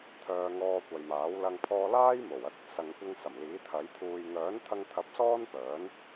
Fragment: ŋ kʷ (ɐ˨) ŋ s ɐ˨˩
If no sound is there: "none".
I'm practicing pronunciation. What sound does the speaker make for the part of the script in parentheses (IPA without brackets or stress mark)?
ɐ˧